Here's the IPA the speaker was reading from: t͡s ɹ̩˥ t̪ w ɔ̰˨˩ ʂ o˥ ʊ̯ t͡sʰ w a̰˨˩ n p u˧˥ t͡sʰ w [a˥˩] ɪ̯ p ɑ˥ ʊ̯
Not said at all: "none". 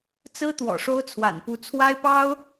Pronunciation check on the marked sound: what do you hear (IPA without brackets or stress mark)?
a˥